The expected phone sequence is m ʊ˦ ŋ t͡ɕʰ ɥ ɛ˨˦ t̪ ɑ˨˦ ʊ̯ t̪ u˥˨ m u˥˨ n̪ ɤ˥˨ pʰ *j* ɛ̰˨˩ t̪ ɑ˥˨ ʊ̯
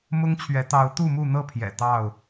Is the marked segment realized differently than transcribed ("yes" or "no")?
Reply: no